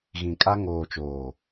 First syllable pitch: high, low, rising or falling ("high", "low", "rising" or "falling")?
low